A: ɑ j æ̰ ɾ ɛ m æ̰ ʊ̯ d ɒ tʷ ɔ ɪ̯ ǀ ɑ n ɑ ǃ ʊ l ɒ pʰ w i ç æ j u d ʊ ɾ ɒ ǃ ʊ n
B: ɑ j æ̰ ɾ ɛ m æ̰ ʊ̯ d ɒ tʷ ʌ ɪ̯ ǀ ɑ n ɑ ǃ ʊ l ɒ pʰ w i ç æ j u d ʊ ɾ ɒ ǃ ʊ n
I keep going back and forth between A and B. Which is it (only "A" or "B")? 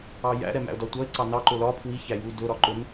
B